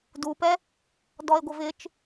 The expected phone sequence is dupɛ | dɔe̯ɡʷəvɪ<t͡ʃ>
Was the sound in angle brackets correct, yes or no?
yes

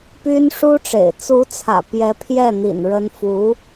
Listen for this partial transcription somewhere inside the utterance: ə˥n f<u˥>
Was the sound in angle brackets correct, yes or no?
no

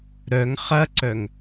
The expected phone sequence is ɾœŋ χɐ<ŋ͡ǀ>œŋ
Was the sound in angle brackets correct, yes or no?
no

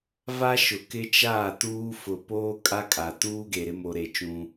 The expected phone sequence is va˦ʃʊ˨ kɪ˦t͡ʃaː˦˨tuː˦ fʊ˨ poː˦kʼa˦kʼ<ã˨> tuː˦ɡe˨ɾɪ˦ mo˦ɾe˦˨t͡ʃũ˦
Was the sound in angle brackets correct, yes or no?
no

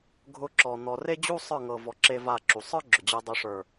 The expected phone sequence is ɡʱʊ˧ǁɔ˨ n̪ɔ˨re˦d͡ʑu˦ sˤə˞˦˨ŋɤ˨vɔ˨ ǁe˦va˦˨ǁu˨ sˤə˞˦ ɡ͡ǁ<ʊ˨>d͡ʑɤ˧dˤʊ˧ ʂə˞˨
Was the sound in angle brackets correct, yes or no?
yes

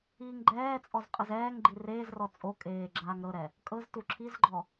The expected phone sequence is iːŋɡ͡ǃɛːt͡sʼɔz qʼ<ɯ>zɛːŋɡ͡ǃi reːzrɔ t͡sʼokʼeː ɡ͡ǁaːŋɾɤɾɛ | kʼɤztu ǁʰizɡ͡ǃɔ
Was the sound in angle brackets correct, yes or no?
yes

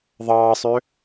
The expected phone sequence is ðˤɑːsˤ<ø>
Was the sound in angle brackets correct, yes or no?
yes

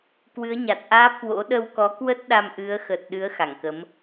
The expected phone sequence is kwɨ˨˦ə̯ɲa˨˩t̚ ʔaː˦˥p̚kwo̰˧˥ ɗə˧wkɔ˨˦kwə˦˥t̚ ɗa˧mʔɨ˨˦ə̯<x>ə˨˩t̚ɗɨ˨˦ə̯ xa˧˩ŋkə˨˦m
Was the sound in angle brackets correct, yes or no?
yes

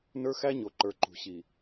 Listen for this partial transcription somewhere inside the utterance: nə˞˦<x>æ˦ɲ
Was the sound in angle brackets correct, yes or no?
yes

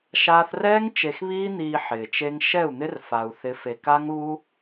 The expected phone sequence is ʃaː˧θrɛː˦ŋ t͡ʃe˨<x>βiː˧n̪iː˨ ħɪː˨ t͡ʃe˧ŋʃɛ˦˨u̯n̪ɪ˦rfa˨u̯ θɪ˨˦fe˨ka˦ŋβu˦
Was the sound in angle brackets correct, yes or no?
yes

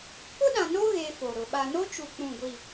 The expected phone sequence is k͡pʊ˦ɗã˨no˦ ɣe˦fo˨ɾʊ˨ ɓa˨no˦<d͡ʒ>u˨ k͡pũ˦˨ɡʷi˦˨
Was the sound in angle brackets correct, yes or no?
no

